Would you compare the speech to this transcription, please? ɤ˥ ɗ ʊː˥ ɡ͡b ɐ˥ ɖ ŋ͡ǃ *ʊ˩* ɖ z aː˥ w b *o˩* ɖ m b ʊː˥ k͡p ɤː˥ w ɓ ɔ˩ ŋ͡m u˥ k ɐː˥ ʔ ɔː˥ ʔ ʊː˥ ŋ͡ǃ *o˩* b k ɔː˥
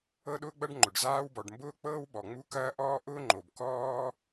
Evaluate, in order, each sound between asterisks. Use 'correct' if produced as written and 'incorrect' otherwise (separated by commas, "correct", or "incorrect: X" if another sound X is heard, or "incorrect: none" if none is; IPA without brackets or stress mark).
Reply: correct, incorrect: ɔ˩, correct